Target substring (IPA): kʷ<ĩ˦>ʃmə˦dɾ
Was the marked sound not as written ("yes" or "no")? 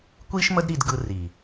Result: yes